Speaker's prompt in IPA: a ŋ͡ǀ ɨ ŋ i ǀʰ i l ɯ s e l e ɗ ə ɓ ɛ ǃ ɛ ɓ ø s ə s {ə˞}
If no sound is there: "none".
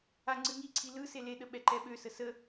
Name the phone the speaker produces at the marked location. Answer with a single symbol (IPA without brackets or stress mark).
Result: ə